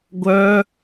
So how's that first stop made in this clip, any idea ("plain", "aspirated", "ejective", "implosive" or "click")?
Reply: plain